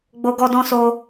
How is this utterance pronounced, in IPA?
ɡ͡bo˦ɡɔ˦dɔ̃˦so˦

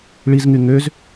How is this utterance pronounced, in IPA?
ɭizŋy ŋøz

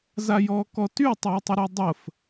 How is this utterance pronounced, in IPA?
zajɔːkɔty tˤʊːtˤɪɾɔdˤəf

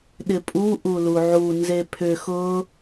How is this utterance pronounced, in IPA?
ɗɪpʼu ʔuluʕu nzepʰʏ xʊ

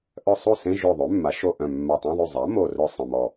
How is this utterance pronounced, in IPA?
ʔœ˥˩ sˤu˥˩sẽ˧˥˧ ʒø˧˩ðˤø˩˥mːa˩˥ʃo˧˩ ʔœ̃˧˩mːa˧˩tˤœ̃˧˥˧ðˤy˥˩ zˤa˩˥mo˧˩rœ˧˩ sˤə̃˧˩mɔ˧˩

